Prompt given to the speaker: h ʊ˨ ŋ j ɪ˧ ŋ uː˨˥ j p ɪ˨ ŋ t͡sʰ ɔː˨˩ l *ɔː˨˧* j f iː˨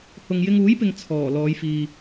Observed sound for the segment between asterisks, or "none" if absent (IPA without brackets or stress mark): ɔː˨˧